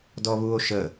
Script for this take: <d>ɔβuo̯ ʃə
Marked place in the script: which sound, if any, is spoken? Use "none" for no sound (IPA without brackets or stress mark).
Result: d